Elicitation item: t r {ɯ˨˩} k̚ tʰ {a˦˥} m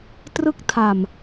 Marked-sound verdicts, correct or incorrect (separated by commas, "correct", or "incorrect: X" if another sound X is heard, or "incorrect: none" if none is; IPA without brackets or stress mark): incorrect: ɯ˥˩, incorrect: a˨˩